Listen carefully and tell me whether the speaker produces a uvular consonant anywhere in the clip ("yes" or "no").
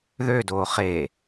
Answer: yes